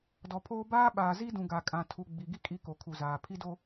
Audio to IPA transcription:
dɔ˨pʰoː˦ baː˦ɓaː˨zi˦dũ˨ ɡa˨kʼã˨ tʰu˨ ɡ͡bi˨ɡi˦ kʼi˦ko˨kʰu˨zaː˨ pʰi˦do˦

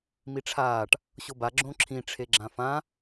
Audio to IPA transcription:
miʈ͡ʂʰaːʈ | ɕoba ɡ͡ǁõǁʰĩ ʈ͡ʂʰeɡ͡ǁãfã

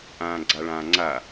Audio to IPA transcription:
ʔãːɡ͡ǀaɭãːŋ͡ǀa

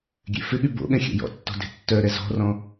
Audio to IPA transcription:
ɡʲḛfɪɠy bo̰ɠɛ̃ xʲɛ̰jɔ̰tːɔ̤ de̤tːœɾɛ zɔ̤rɔ̃

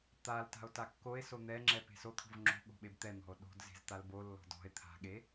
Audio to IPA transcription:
t̪al ta̤o̯takːoe̯so n̪ɛŋ͡ǁɛ pe̤sot̪ʰo̤v ŋ͡ǁo̤ɠo̤ ɓebt̪ɛn̪ɔ̤o̯ ɗo̤d ze̤zt̪albolːɔ̤d ɔ̤e̯ t̪ʰa̤ɠe

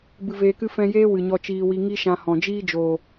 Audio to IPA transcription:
bɨ˧veː˧kɨ˦ fɛ̃˦ jeː˦ wɨ˨ɲɔ˧ t͡ʃiː˧wi˧ ŋi˦ʃã˧hɔ̃˨ d͡ʒiː˦d͡ʒoː˨

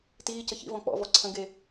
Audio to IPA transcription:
tiːcə çḭvɔ̃ k͡pɔ̰vɔ ǀʰə̃ɡe

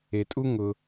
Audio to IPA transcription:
e˨tʼu˦ ŋʊ˧

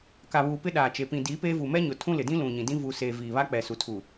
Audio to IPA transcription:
ka˨βuː˨ pɪ˦ɗaː˨t͡ʃe˨ pĩ˨diː˨˦peː˦vu˨ mɛ˦ɲʊ˨tʰũ˦ lɪ˨dĩ˦lũ˨ ɲĩ˨dĩ˦ vu˨seː˨ viː˨βa˦k͡pɛ˨ su˨tʰu˨

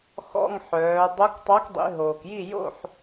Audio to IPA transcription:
xɔ̰˧˥˧ŋħœː˩˧ dˤo˧˥ktˤɑ˧˥kdˤḭ˩˧ ɦoː˩kji˥˨ jo̰˥˨ħ

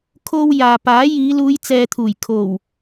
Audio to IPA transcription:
kʰo˧w jaː˨paː˨˥jiː˨˧ luː˨˧jt͡sɛː˨t̪ʰuː˨˩j kʰo˨˩w

